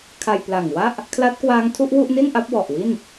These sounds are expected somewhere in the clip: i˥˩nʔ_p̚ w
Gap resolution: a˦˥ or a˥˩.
a˦˥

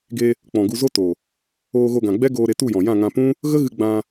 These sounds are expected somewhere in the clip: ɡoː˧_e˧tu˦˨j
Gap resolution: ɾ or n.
ɾ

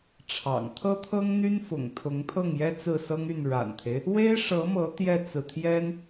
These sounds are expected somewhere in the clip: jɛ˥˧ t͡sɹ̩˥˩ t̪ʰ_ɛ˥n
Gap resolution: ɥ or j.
j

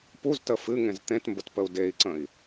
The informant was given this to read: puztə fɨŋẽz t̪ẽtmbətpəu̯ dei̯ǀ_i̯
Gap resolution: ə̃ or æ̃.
ə̃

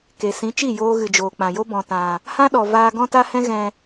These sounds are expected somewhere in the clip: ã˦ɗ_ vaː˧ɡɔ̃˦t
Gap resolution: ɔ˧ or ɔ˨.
ɔ˨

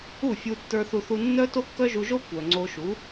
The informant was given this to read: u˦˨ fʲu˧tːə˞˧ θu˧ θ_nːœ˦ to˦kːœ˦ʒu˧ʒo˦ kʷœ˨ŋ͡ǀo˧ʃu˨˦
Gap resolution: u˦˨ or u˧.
u˧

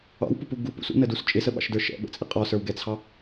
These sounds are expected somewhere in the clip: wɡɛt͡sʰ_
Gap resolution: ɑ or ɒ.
ɑ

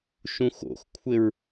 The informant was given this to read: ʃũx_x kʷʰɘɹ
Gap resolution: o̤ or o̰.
o̰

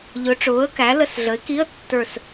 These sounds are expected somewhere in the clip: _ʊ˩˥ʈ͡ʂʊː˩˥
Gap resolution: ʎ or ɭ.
ʎ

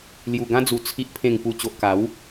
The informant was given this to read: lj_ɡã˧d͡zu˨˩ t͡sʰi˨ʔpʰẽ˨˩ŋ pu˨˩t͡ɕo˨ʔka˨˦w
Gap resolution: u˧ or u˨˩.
u˨˩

